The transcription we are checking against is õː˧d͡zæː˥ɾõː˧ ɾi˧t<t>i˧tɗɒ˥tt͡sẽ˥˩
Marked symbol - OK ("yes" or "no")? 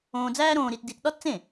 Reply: no